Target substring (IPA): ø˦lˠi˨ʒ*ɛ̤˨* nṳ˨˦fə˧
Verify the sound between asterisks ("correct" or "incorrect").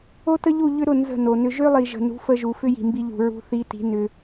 incorrect